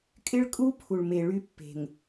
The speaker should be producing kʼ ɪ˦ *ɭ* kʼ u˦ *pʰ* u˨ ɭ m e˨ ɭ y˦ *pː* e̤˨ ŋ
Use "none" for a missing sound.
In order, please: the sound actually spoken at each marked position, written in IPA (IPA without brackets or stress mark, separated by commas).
ɭ, pʰ, pː